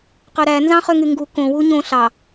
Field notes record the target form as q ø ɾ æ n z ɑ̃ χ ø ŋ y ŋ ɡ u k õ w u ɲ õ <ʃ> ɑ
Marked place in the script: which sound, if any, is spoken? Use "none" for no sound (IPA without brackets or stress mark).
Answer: ɬ